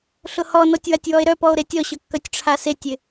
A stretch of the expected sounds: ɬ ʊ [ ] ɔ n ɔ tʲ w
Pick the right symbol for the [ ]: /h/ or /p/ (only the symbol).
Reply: h